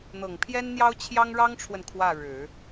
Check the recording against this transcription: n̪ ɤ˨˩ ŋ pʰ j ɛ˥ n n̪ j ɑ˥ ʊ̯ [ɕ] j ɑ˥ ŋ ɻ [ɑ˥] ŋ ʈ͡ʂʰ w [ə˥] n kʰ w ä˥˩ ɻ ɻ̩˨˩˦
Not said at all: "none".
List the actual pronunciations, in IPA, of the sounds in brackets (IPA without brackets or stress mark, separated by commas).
t͡ɕʰ, ɑ˥, ə˨